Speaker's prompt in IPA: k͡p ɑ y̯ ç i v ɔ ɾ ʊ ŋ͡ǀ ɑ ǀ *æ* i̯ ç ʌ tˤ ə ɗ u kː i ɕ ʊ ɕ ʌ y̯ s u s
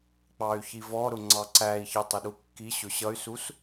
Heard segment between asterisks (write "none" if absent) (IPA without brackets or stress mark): æ